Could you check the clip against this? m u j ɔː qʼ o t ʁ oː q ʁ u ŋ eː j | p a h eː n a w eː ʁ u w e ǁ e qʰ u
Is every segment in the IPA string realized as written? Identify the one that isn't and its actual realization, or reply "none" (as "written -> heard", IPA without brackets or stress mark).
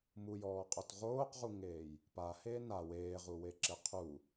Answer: none